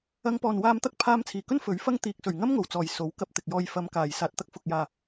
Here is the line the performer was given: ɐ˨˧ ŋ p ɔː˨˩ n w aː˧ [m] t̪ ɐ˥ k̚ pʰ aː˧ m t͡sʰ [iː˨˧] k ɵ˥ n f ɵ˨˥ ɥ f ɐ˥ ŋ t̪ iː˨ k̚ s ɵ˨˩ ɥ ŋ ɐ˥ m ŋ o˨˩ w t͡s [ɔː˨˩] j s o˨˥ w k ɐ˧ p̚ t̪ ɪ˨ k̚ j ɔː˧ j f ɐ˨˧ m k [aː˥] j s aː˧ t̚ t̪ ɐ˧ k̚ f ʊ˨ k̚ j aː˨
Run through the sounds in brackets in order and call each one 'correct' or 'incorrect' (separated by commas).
correct, incorrect, correct, incorrect